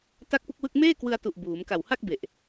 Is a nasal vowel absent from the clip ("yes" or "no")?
yes